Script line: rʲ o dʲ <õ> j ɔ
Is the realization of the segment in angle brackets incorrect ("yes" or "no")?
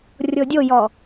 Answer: yes